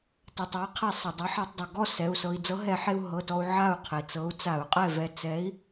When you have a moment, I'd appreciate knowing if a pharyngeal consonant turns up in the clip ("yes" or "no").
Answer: yes